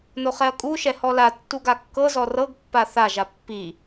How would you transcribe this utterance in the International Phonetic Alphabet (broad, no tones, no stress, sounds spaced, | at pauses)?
n o χ ɛ ɐ̯ kʼ u ʃ ɛ h ɔ l a tː u ɡ a kː ɤ z ɔ r ɤ ɡ pː a θ a ʒ a pː i